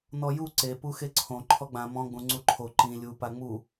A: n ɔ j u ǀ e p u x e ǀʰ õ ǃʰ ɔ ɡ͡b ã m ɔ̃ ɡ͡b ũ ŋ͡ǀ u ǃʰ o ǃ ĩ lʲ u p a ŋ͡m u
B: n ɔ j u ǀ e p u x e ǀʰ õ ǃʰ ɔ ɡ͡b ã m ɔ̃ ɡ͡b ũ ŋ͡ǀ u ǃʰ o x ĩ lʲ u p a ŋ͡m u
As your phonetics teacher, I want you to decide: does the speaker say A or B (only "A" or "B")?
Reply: A